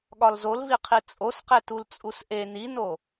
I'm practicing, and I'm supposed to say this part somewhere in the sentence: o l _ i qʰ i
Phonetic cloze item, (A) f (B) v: B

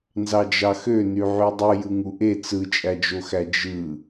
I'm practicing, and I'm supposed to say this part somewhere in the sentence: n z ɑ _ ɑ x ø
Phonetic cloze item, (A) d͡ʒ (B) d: A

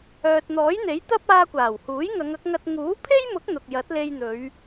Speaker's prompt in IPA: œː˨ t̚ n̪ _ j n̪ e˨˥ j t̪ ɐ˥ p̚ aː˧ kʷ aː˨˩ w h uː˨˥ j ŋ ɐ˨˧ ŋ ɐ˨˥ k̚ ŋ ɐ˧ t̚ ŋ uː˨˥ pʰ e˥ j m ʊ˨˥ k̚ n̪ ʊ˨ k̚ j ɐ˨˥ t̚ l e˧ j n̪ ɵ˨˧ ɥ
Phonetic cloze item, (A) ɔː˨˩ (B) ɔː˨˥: B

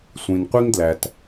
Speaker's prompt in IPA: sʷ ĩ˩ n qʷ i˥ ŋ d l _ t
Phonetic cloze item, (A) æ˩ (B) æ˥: A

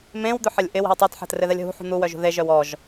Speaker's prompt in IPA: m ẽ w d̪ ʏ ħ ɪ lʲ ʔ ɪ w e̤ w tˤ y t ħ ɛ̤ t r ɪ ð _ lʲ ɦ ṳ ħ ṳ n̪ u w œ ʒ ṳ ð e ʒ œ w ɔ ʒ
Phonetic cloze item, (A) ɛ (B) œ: A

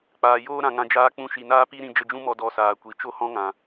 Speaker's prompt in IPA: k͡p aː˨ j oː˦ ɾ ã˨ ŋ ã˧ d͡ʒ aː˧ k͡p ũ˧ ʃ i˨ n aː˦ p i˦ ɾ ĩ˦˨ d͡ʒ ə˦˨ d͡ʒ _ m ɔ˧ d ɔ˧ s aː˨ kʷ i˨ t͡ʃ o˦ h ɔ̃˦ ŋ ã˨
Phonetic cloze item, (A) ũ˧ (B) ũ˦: B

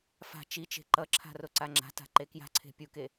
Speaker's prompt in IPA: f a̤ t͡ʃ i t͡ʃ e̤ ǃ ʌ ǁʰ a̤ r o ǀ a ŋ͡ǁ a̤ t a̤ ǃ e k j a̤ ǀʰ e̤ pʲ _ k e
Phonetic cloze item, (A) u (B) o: A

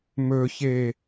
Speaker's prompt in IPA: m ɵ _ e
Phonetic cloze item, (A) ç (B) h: A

